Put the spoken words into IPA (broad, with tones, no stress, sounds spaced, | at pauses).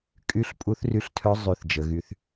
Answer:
kʼ y˧˥ ɬ pʼ u˧˥ θ r y˧ ɬ tʰ œ˧˥ zˤ y˧˥ θ d͡ʒ ə˩˧ ɣ y˧˥ θ